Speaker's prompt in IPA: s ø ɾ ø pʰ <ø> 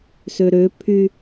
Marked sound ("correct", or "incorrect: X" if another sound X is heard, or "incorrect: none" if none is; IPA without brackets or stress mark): incorrect: y